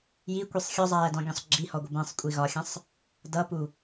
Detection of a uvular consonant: absent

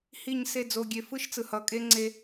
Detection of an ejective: present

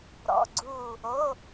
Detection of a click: present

